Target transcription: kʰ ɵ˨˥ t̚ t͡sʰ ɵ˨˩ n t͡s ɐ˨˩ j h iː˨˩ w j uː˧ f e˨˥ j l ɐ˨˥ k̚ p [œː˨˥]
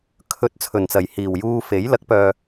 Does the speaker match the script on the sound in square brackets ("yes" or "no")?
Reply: no